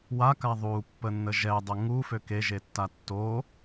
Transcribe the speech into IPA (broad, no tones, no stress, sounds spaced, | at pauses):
w a k a ðˤ u pː ə nː ə ʒ ɛ dˤ œ ŋ u f ø k e ʒ e tː a tː o